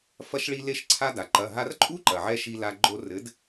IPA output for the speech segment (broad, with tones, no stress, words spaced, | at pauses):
fɐ˧ʃɭi˧ le˧ʃǀʰa˧da˩ǃɐ˩˧˩ ɦa˧rǃʼu˥ǃɐ˩ʕɛ˧ ʃi˧la˧ ɡ͡ǃo˧rɘ˨˥d